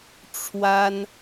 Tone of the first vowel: high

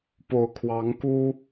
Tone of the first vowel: low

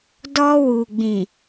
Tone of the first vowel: high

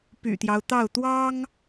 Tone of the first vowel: low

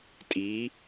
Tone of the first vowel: rising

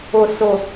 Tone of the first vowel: low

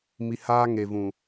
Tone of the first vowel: low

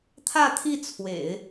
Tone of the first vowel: falling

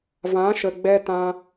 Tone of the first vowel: rising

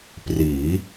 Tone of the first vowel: rising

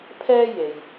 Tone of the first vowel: high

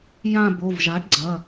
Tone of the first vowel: falling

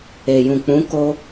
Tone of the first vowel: low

